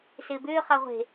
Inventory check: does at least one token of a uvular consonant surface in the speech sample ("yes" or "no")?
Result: yes